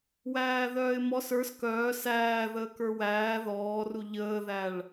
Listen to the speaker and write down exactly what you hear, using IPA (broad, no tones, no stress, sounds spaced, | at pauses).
w æː ð œː ɪ̯ m ɔ s ə˞ s k œː s æː ð əː k ə˞ w æː ð ɔː r u ʎ əː ð æ ɭ